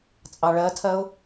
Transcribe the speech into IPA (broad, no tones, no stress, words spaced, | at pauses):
t͡sʼɑɭɜtʰɜʊ̯